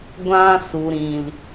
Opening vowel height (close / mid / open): open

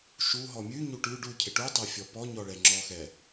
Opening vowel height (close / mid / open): close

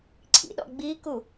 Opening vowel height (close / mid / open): close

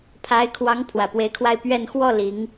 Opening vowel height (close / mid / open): open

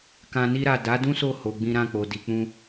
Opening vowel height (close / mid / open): open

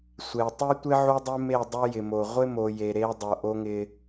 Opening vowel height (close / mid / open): mid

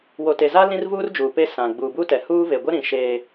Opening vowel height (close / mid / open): mid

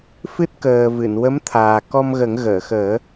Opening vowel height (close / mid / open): close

